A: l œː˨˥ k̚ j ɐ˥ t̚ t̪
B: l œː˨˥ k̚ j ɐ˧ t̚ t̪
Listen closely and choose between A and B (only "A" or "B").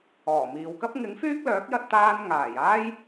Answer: B